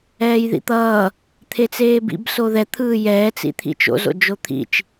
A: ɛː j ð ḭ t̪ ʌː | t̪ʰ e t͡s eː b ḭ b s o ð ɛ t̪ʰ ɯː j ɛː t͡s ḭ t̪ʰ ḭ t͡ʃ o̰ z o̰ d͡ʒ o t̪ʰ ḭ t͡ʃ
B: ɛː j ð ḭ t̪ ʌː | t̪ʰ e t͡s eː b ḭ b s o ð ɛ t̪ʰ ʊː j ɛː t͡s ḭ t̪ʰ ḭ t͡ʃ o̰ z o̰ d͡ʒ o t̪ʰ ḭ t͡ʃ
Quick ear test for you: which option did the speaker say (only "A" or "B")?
A